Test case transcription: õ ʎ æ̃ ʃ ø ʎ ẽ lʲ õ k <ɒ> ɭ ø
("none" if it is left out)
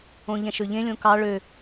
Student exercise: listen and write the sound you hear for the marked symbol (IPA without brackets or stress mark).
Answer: ɑ